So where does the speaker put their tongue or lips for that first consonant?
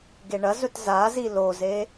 velum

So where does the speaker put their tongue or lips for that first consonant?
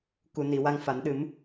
velum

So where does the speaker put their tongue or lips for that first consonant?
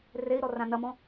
tongue tip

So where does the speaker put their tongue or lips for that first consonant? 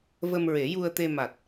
lips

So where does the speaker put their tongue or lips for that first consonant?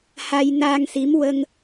throat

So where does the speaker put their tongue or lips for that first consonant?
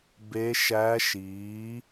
lips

